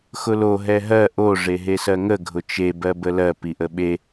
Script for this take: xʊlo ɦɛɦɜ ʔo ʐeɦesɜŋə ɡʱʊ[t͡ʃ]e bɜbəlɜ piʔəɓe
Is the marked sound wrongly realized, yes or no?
no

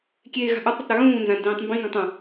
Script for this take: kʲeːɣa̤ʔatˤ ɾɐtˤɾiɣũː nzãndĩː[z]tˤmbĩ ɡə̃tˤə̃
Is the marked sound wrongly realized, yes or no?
yes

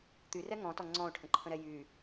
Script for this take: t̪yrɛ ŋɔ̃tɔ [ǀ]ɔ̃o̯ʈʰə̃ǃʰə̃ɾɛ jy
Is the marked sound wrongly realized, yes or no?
yes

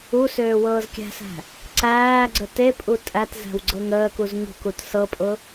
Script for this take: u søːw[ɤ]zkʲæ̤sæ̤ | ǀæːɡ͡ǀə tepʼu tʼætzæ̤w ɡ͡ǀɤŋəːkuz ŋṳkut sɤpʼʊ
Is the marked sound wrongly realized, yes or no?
yes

